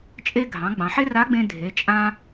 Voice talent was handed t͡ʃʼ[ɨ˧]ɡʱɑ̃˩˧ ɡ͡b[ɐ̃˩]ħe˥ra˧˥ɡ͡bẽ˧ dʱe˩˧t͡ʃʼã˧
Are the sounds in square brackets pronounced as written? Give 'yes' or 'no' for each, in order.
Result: no, no

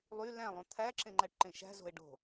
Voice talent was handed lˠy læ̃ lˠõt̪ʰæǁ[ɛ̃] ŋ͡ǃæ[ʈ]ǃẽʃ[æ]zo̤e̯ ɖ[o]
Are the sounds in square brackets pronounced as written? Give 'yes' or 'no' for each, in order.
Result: no, yes, no, no

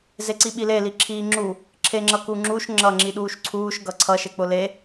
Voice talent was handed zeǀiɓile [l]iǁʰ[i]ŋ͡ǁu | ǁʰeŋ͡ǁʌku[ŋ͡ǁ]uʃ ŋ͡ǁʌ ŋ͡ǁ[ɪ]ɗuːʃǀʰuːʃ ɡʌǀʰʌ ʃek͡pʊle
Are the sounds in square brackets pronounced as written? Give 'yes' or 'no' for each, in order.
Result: yes, no, yes, no

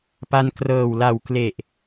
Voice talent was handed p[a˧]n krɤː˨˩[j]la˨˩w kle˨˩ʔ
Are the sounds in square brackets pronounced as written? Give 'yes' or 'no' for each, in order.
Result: yes, no

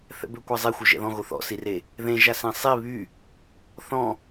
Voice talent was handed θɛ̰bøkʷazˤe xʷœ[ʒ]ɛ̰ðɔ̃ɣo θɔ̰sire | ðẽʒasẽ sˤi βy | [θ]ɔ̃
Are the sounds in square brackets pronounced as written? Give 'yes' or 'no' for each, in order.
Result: yes, yes

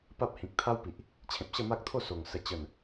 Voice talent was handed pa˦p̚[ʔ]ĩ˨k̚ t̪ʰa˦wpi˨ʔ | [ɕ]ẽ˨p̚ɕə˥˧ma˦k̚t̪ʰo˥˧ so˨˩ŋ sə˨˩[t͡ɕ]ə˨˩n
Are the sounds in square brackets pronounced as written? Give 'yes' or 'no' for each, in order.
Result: no, no, yes

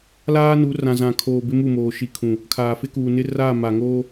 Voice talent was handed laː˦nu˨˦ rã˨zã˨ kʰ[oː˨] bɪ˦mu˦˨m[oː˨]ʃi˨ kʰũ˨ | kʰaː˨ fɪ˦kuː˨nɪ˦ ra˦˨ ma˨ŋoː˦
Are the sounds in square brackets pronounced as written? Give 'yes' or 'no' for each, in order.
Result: yes, yes

